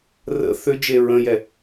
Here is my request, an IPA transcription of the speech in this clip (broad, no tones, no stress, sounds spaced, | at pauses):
r ə̰ θ ʏ d͡ʒ e ɹ ə̃ j ɛ